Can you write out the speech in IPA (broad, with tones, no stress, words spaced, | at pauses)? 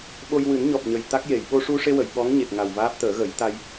ɓo˧jwɨ˨˩˦n ɲɔ˨˩p̚ɲə˨˩j t̪a˦˥k̚je˨˩˨j ɓo˧ʂu˧ʂe˧wə˨˩˨j ɓɔ˧˥ŋɲe˨˩k̚ ŋa˨˩wvaː˦˥p̚ t̪əː˨˩˦ɣə˨˩˦j t̪a˧j